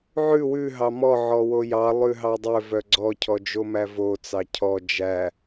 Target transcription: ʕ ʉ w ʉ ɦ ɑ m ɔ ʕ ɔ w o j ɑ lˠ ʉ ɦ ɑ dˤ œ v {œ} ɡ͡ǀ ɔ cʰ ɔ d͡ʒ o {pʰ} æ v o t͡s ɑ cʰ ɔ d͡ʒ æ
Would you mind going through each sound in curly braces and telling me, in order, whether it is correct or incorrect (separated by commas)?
correct, incorrect